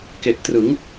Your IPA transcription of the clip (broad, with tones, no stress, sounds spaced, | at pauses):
k e˨˩ ʔ t r ɯ˩˦ ŋ